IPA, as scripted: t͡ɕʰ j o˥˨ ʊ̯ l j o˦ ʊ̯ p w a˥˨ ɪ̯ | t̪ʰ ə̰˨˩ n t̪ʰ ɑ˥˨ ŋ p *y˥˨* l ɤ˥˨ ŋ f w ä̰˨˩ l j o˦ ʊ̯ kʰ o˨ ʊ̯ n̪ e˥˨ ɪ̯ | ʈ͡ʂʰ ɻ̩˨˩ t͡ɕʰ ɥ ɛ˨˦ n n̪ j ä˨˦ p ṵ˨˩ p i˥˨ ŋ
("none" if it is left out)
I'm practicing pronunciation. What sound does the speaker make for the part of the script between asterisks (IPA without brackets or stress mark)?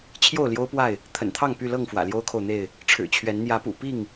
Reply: y˥˨